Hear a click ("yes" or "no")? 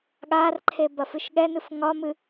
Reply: yes